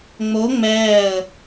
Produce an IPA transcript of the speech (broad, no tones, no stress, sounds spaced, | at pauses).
ŋ͡m o ŋ͡m ɛː ə̯